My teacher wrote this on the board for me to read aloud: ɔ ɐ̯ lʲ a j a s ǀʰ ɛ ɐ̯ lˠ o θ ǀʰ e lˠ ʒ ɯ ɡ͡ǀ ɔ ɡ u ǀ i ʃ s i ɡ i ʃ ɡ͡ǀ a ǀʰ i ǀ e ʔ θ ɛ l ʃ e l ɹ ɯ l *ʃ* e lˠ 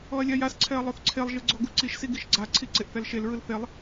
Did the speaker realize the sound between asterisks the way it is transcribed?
no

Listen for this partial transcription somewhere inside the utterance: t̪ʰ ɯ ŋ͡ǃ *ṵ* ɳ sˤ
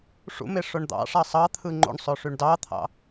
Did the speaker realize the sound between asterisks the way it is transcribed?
no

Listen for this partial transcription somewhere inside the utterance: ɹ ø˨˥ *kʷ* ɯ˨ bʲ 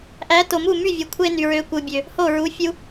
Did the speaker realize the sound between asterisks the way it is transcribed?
yes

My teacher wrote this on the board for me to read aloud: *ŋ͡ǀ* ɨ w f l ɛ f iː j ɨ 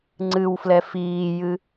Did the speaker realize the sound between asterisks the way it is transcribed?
yes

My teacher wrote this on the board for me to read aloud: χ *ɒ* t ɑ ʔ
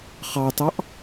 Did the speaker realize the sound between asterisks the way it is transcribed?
no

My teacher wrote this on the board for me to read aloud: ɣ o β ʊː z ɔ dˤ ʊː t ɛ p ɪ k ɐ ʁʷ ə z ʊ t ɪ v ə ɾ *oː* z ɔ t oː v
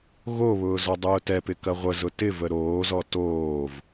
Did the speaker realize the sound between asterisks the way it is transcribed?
yes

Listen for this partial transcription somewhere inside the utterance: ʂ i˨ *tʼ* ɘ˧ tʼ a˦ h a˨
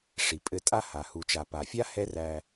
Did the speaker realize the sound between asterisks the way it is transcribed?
no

